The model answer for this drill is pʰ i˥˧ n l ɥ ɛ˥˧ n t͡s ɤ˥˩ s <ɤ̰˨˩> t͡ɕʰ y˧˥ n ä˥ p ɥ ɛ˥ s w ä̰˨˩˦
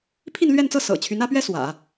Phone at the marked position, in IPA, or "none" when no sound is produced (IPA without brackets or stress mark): ɤ̰˨˩